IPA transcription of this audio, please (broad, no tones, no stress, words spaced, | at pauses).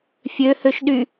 fʲøhøʃɗy